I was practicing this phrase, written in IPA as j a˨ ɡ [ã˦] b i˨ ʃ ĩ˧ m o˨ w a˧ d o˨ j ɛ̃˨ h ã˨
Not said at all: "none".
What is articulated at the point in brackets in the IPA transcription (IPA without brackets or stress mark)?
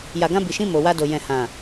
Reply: ã˧